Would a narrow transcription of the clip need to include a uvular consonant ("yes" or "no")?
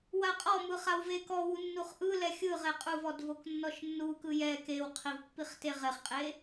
yes